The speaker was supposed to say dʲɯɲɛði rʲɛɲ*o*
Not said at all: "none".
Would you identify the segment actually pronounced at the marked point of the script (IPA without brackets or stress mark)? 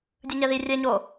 o